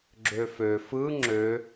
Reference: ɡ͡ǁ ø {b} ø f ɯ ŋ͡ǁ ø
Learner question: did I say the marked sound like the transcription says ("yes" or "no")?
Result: no